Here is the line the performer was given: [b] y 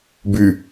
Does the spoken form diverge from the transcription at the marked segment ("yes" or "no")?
no